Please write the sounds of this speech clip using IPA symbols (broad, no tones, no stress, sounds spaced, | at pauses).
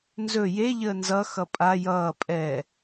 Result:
n z ɵ j e ʎ əː n z ʌ x ʌ pʼ a j ʌː pʼ ɛ